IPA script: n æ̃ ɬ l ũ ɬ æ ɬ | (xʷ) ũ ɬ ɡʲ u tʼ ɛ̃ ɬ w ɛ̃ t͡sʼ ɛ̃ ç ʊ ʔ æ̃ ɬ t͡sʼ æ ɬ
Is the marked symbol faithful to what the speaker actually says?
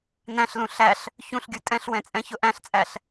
no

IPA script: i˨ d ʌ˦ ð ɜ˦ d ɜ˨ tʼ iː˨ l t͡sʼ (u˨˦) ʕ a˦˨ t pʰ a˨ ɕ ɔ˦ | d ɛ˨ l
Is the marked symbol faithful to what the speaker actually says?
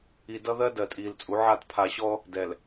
yes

